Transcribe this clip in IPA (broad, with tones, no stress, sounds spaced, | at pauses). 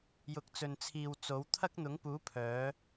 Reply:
j ʊ˨ k̚ t͡s ɵ˨ n t͡sʰ iː˨ w t͡s o˨˥ w t̪ʰ ɐ˥ k̚ n̪ ʊ˨˥ ŋ p uː˨˥ pʰ œː˨˥